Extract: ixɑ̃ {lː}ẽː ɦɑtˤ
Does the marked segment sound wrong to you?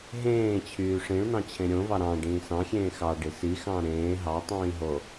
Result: yes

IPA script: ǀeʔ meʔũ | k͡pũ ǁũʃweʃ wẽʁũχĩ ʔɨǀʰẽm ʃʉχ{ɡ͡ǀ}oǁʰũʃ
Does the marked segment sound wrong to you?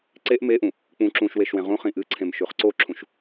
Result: yes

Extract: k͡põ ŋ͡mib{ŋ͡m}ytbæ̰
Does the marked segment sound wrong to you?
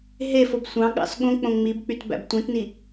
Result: yes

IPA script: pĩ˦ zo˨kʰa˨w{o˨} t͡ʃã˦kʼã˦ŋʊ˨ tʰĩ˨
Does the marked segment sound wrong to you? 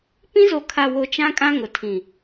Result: no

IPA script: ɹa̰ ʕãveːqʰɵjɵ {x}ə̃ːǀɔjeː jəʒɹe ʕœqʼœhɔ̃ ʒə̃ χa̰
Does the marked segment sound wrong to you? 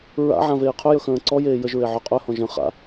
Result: no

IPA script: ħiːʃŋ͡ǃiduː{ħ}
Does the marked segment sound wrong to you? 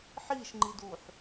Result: no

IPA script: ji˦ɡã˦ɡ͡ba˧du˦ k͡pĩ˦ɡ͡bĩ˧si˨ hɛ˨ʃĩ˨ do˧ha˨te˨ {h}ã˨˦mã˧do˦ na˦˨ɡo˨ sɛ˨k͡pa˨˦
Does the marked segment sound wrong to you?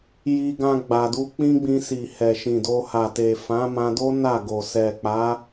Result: yes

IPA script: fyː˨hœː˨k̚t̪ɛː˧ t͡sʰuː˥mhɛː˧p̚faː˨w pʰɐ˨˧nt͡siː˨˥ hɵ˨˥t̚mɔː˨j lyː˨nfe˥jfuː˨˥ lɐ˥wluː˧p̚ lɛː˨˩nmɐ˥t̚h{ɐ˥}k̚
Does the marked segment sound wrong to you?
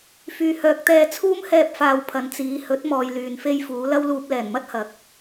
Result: yes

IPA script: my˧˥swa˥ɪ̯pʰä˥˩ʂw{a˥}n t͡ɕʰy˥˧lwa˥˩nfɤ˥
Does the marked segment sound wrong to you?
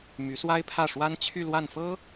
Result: no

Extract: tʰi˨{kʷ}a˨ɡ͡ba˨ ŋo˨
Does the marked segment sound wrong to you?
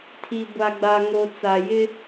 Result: yes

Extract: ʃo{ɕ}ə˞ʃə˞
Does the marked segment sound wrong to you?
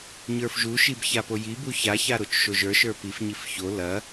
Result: yes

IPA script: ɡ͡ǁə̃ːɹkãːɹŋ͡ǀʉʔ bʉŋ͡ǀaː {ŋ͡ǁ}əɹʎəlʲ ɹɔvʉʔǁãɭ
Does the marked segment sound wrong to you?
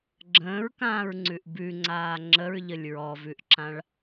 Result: no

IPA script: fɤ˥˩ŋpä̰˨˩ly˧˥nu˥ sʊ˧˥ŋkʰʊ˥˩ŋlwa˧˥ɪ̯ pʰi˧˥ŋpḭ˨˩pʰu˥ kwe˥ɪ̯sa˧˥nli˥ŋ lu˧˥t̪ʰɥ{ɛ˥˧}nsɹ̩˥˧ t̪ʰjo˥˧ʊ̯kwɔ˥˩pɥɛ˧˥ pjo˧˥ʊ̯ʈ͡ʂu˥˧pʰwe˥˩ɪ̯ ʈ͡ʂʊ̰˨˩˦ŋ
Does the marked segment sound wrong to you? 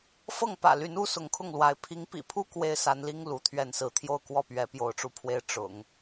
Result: no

